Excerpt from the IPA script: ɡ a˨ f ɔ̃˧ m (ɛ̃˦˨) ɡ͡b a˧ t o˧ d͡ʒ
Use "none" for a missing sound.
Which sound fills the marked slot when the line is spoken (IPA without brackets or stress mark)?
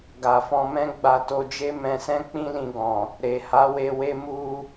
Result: ɛ̃˦